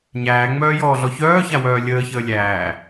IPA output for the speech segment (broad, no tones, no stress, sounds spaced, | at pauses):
ɲ æː ŋ͡m œː j ɔː ɮ ɔ ç œː ç a w œː lʲ əː ç əː lʲ æː